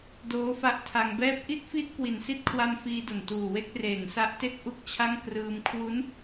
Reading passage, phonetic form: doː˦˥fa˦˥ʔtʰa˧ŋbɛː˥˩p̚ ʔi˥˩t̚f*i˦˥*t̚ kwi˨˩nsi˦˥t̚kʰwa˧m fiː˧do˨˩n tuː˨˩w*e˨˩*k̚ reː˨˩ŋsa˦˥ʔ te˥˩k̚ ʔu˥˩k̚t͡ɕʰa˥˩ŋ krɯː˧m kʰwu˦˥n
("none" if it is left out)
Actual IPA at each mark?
i˦˥, e˦˥

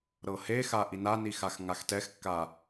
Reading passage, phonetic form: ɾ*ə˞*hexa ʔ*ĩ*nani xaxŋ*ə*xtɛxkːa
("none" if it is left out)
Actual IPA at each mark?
ɤ, i, a

